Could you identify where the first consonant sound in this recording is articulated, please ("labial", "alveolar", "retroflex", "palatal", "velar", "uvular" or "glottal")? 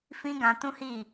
labial